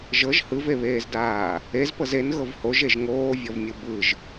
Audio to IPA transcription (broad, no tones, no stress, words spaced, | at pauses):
ʒɤʒ hɯveβeːzdaː | ezpɤz enɣɤv hoʒeʒ ŋoːvʲɔvmʲɯ bɯʒ